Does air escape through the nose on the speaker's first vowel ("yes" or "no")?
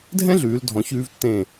yes